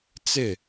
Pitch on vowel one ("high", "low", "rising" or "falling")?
falling